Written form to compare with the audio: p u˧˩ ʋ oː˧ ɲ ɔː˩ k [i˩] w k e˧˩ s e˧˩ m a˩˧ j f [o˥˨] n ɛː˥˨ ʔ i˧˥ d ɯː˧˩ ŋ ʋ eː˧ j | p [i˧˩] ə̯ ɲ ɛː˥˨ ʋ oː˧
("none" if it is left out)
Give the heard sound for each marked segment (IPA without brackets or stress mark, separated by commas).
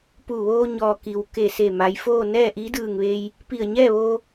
i˩, oː˥˨, i˧˩